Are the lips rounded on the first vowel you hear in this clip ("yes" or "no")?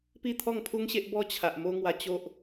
no